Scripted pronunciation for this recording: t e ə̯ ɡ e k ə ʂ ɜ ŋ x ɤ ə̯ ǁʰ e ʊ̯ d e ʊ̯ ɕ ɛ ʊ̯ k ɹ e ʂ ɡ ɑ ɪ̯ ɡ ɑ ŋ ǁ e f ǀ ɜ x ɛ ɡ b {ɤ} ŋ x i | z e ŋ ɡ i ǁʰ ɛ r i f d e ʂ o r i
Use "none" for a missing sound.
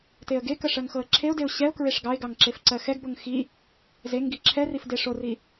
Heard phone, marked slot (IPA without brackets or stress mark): ɤ